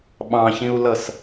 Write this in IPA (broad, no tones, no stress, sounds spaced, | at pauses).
ɓ ɑ̃ ç ĩ u̯ l ʌ s